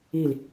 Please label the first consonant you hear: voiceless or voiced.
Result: voiced